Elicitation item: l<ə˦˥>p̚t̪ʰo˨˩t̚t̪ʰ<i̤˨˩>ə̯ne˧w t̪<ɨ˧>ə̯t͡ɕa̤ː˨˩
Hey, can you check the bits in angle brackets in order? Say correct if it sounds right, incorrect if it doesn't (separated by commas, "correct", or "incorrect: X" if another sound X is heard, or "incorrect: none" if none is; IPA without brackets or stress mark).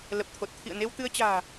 incorrect: ə˨˩, incorrect: ḭ˧˨, correct